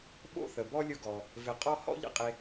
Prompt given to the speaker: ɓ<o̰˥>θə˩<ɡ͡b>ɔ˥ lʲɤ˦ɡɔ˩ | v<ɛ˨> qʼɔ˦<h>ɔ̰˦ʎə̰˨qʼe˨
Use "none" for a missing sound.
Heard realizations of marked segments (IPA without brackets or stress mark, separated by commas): o̰˥, b, ɪ˨, h